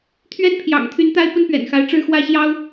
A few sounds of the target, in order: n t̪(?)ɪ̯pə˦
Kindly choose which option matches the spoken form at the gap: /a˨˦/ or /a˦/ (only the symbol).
a˦